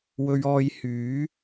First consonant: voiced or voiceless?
voiced